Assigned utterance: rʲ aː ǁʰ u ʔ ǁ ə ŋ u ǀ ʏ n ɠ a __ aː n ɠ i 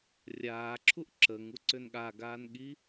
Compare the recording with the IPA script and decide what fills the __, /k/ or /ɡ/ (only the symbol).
ɡ